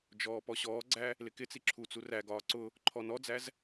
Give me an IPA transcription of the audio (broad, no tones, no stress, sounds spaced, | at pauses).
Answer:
d͡ʒ ɔː p ɔ ɕ ɔː ɡ͡ǀ æ | l ɪ k ɪ t͡s i ǁʰ u t͡s u r æ ɡ ɒː ǀ ʊ | ǃʰ ɔ n ɔ d͡z æ z